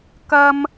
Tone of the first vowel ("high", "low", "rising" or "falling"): high